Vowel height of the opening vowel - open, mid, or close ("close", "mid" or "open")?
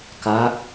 open